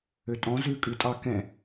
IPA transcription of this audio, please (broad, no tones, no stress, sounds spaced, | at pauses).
ø tʼ ɔ̃ z ʉ kʼ ʉ tʼ ɑ k ɛ̃